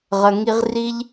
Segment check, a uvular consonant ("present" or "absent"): present